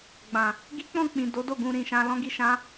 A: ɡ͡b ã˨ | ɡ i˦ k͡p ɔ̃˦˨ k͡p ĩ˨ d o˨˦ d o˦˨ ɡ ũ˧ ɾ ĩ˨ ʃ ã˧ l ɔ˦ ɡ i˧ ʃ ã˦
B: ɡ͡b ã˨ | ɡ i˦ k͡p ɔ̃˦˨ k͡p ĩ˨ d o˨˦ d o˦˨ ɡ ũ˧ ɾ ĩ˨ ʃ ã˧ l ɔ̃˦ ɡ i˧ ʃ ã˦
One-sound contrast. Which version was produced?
B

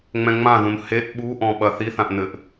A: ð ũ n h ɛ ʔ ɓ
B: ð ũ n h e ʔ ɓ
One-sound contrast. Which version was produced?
B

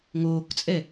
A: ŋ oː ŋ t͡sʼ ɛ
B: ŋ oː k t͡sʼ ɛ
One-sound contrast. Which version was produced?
B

